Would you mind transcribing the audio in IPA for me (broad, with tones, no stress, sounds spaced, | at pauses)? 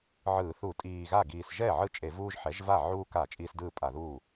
ʕ ɯː˧˩˧ θ u˧˩˧ tʼ iː˨˩ ɣ a˥˩ ɡ iː˨˩ s ʒ ɛ˥˩ ʕ ɯ˥˩ t͡ʃʼ e˧˩˧ v uː˦ ʒ ħ ɛ˩˥ ʒ v a˥˩ ʕ uː˦ k a˧˩˧ t͡ʃʼ iː˦ s d ɯː˥˩ pʼ a˧˩˧ ð uː˥˩